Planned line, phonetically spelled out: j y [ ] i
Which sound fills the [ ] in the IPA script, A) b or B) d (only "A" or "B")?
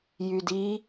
B